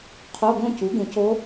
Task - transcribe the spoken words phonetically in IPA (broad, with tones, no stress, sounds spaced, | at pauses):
qʰ o˧˥˧ ɡ õ˥˧ c u˩˥ ɡ ũ˨˩˦ c o˧˥